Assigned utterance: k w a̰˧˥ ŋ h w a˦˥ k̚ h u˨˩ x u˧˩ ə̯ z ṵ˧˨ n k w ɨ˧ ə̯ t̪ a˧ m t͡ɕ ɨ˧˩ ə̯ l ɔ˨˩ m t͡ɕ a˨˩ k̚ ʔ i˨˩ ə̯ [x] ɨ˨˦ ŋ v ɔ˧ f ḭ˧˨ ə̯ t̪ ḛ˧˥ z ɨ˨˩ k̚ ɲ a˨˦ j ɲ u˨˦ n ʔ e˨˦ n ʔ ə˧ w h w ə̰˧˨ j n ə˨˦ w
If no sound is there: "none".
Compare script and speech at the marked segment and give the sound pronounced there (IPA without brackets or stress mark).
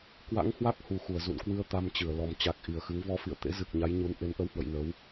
x